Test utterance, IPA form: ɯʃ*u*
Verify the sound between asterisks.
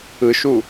correct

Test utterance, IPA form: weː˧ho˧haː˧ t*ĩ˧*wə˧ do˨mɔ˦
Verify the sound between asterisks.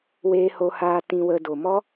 correct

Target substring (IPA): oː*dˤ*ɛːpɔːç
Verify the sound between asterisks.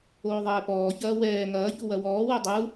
incorrect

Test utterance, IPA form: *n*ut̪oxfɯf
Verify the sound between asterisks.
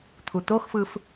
incorrect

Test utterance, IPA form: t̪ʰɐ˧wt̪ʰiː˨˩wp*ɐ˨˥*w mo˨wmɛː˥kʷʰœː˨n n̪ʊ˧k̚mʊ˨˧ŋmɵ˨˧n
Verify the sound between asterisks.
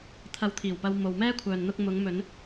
incorrect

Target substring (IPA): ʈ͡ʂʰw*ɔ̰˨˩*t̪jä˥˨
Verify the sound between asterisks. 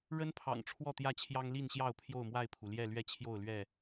incorrect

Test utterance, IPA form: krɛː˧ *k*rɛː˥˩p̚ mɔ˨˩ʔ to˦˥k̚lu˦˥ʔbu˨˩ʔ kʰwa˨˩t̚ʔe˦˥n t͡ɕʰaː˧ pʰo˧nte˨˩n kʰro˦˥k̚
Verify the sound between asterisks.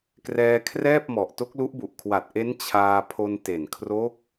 incorrect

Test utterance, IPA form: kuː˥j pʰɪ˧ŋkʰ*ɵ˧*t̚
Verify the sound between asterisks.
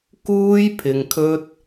incorrect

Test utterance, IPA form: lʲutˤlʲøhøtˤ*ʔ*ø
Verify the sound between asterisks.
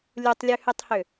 incorrect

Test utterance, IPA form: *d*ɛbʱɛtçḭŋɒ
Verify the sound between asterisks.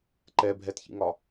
incorrect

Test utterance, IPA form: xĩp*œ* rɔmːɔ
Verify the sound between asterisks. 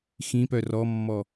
correct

